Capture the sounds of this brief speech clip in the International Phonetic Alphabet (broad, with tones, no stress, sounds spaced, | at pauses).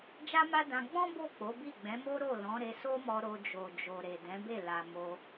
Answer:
d͡ʒ a˦ m a˦ d ã˧ ɡ͡b ɔ̃˦ b o˦˨ k͡p o˨˦ b i˦˨ ɡ͡b ɛ̃˨˦ m o˦ ɾ o˦˨ l ɔ̃˨˦ ɾ e˧ s o˦ m ɔ˧ ɾ o˧ d͡ʒ o˨ d͡ʒ o˨ ɾ e˨ d ɛ̃˨˦ b e˦˨ l a˨ m o˧